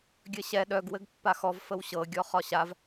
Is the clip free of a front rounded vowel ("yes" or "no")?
no